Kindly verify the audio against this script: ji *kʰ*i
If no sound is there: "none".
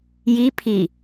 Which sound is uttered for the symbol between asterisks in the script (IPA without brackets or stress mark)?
pʰ